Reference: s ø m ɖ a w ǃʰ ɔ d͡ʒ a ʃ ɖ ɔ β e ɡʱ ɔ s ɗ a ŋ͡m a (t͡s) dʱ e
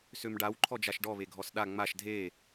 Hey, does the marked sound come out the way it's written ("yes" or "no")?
no